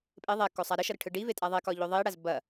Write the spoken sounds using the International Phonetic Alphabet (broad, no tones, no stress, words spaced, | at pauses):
pʼe ðˤɛkosˤa ɾəʃʌɾəʈʰɯ ɖivetʼa ðˤekɒʎo ðˤiɽaz bɐ